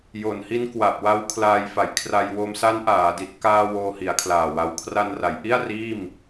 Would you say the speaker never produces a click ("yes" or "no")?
yes